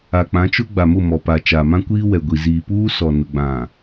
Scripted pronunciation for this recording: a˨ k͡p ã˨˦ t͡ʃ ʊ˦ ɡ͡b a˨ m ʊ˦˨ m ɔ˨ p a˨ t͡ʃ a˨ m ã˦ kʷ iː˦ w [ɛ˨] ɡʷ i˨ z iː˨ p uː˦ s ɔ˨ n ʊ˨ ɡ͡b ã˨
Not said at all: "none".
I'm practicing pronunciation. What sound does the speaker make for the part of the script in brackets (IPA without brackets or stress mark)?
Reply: ɛ˨